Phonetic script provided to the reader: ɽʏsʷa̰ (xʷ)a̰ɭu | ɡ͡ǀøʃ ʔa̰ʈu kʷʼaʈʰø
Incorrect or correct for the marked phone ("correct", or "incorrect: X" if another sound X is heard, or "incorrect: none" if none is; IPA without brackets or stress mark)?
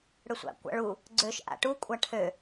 incorrect: kʷ